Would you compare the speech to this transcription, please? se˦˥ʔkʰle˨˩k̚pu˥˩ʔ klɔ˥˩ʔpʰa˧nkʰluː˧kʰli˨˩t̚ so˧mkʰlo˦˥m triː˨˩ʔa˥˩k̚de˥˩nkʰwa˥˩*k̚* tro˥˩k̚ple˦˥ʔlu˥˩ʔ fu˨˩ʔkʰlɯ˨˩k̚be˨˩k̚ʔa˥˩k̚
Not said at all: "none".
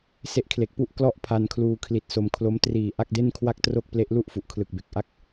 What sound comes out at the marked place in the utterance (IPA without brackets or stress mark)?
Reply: k̚